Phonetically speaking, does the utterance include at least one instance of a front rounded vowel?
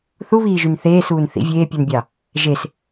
yes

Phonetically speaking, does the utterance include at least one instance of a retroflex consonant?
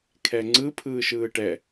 yes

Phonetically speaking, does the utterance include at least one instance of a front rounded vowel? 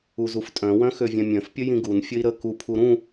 yes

